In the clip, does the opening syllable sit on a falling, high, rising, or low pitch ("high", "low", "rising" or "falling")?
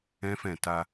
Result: high